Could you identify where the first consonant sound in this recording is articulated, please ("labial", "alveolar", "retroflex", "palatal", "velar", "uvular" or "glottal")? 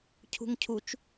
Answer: palatal